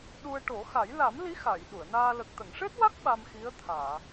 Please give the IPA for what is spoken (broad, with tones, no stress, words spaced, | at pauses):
ɗu˧ə̯ʈo˨˩˦ xa˨˩˦j la˨˩˦mli˧˥ xa˨˩˨j ɗu˨˩˨ə̯naː˧ lə˨˩k̚t̪ə˨˩˨ŋʂe˦˥t̚wa˦˥k̚ ɓa˧mxi˧˥ə̯t̪ʰaː˨˩˨